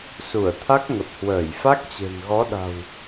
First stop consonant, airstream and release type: aspirated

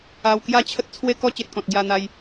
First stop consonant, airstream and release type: plain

